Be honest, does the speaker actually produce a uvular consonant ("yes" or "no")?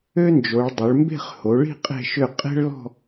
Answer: yes